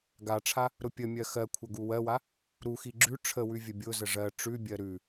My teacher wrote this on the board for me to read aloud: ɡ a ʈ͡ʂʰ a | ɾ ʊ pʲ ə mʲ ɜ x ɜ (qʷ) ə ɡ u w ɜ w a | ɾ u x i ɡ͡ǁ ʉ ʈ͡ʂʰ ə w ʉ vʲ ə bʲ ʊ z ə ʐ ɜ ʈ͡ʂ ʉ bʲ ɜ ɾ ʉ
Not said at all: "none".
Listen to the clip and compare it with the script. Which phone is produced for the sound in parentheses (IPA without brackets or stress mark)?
kʷʰ